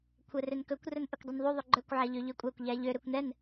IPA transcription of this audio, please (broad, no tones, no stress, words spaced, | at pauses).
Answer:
kʷʰɛrønkɵkʷ rɵnʔɵkʷdˤunðˤu ðˤøɡ͡ǃœkʷ ʕæʎøʎøkʷʼækʷ ʎæʎø ɾøkʷnɛn